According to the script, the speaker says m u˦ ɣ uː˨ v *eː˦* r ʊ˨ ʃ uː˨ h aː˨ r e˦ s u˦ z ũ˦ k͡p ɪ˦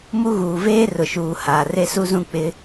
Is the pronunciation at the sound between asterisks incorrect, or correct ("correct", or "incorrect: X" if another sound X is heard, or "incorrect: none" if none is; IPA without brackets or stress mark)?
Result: correct